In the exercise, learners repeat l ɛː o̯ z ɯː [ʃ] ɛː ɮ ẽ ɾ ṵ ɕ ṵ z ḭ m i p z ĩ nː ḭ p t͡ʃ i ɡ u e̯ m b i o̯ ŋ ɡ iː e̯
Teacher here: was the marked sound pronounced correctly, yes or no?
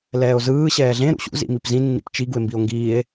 no